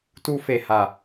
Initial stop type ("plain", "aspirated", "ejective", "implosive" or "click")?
plain